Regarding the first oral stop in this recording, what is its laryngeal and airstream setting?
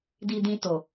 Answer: plain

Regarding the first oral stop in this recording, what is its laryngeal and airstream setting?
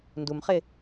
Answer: plain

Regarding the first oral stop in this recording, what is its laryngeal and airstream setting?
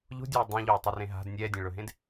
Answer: plain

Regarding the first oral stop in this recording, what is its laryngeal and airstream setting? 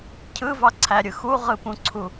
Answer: aspirated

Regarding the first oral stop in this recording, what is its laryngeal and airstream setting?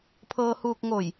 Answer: aspirated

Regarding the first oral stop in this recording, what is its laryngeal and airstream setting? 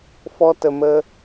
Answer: plain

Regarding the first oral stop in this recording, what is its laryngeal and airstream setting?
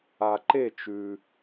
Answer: click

